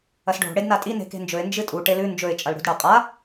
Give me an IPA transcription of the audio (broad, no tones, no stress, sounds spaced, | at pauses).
ɐ s ɖʱ o̤ ɽ e d n a tʼ i n e̤ k e̤ n d͡ʒ ɵ ɪ̯ n d͡ʒ ɨ tʼ u ʈ e l ʉ n d͡ʒ ɵ ɪ̯ t͡ʃʼ ɐ l ɽ ṳ d ɽ ɐ qʼ a